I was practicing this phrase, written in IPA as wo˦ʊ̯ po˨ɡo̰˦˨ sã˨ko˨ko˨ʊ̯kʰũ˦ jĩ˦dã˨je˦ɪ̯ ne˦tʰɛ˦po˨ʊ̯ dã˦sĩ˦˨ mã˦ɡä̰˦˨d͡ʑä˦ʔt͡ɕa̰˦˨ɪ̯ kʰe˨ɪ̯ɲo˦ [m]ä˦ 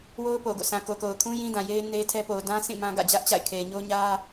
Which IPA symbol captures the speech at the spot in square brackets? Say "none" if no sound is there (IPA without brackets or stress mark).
ɲ